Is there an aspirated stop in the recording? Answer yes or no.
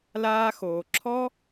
yes